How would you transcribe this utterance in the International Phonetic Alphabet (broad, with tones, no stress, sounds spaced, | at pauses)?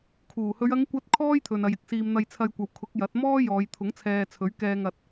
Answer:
kʰ uː˨˩ h ɵ˨˧ ɥ ɐ˨˧ ŋ kʷ ɐ˨˥ t̚ kʰ ɔː˥ j t̪ʰ ɵ˨ n ɐ˨ j ɪ˧ k̚ s iː˨ m n̪ ɐ˧ j t͡sʰ ɐ˧ j kʷ ɐ˨ w kʰ ʊ˨˥ k̚ j ɐ˨˥ t̚ m ɔː˥ j ɔː˨˧ j t̪ʰ ʊ˨˥ ŋ t͡sʰ ɛː˧ t͡sʰ ɵ˨˥ ɥ k ɛː˧ ŋ ɐ˧ t̚